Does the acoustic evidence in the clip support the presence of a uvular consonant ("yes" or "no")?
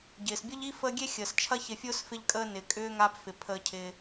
no